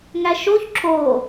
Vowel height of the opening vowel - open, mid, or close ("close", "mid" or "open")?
open